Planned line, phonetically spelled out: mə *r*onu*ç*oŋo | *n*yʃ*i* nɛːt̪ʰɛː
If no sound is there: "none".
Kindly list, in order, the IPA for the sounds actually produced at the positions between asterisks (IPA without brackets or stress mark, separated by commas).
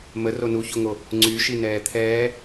r, ç, ŋ͡ǀ, i